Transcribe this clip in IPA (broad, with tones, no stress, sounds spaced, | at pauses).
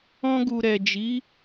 ɔ̃˧ ɡ u˨ ɾ ɛ˨ d͡ʒ i˨˦